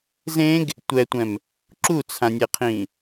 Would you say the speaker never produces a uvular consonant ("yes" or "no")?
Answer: no